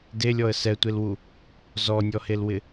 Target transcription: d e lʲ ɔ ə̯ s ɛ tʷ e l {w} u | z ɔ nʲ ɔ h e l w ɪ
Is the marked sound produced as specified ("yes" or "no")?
yes